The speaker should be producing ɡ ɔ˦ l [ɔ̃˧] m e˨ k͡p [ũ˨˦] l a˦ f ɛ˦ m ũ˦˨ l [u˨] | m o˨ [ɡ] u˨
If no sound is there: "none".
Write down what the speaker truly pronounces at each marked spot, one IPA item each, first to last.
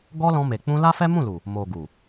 ɔ̃˧, ũ˧, u˨, ɡ

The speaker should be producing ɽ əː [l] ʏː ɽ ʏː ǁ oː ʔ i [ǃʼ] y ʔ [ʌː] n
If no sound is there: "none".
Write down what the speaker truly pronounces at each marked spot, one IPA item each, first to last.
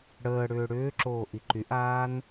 ɽ, ǃ, aː

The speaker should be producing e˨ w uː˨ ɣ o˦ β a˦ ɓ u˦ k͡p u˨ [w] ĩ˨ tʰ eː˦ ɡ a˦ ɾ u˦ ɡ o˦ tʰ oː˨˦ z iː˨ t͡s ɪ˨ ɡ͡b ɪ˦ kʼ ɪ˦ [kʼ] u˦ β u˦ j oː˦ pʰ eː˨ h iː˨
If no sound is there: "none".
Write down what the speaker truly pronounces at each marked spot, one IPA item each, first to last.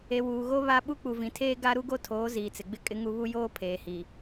v, ŋ

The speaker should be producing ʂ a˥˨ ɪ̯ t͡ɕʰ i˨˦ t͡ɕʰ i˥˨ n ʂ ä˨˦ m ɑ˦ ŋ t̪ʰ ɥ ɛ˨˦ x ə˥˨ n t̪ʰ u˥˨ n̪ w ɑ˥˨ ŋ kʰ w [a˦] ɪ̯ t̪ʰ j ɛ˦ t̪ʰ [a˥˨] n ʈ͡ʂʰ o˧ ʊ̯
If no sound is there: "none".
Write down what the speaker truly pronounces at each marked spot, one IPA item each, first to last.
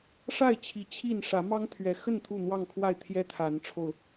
a˥˨, a˨˦

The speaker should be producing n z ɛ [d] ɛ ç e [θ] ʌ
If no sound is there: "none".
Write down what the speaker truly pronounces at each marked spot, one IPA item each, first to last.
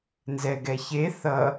ɡ, θ

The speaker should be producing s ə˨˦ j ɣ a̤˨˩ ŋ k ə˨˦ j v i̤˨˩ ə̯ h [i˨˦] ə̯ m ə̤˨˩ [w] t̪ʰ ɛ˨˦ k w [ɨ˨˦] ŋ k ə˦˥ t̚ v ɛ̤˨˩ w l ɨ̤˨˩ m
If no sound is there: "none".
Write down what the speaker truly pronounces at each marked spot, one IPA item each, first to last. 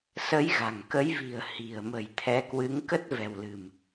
i̤˨˩, j, ɨ˨˦

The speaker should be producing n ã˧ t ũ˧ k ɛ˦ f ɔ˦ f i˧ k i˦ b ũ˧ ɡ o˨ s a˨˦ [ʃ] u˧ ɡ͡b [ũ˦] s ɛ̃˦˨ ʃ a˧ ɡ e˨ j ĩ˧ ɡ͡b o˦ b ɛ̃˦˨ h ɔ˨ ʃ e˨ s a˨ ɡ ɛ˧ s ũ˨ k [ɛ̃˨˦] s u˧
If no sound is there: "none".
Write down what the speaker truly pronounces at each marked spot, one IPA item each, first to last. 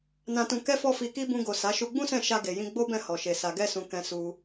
ʃ, ũ˦, ɛ̃˨

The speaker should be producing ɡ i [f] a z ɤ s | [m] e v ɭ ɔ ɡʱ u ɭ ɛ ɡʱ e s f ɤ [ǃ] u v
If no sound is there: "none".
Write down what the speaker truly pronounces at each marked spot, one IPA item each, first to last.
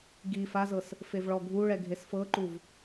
f, f, ǃ

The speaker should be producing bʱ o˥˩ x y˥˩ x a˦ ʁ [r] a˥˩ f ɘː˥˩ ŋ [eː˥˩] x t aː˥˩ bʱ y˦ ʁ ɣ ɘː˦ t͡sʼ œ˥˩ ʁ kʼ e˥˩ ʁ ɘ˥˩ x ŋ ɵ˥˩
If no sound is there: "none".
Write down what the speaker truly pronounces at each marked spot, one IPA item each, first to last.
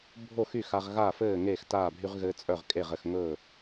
ɣ, eː˥˩

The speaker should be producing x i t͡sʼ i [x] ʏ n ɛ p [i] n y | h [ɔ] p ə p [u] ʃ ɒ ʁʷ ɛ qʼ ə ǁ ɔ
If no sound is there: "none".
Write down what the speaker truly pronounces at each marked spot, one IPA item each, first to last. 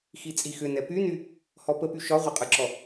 x, y, ɔ, y

